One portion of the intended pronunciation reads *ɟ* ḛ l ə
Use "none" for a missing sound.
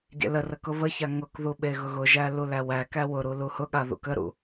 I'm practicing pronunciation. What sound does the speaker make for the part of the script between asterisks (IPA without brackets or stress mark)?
ɟ